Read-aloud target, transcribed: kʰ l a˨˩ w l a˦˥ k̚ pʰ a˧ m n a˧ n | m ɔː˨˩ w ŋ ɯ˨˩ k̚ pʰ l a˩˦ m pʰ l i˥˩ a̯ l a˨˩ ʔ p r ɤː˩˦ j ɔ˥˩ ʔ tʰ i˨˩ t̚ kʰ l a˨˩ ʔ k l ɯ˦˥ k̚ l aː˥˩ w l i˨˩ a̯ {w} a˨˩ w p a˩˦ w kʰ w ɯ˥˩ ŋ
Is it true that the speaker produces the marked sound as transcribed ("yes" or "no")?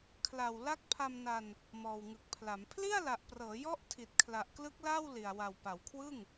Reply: yes